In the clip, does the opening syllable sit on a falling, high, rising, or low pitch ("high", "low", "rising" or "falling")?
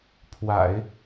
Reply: low